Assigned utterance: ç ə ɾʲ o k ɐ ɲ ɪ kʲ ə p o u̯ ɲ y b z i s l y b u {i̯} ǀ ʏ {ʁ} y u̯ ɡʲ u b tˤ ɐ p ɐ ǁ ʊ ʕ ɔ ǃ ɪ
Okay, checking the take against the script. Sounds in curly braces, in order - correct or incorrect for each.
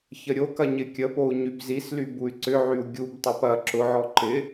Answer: incorrect: y̯, incorrect: ʕ

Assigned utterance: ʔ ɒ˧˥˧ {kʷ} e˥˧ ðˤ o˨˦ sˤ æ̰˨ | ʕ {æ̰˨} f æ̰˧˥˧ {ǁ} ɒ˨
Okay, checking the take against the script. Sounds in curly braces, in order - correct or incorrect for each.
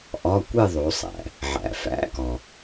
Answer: correct, correct, incorrect: k

